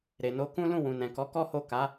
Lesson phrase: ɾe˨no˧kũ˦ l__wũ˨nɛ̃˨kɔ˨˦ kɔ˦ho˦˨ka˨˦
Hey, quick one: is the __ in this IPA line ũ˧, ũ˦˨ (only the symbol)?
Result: ũ˦˨